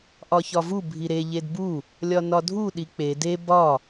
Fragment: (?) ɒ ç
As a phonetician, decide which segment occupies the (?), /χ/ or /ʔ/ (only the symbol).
ʔ